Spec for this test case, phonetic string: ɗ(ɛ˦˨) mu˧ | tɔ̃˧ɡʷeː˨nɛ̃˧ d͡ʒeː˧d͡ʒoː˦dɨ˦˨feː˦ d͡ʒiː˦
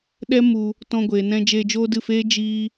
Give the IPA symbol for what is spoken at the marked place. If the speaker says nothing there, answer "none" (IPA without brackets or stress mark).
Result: ɛ˦